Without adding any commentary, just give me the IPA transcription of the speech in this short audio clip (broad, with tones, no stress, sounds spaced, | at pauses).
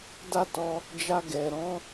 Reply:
d a˦ t ɔ˧ | d͡ʒ a˧ ɡ ɛ˨ ɾ ɔ̃˨˦